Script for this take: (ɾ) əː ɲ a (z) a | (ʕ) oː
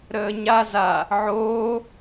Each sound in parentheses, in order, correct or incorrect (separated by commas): correct, correct, correct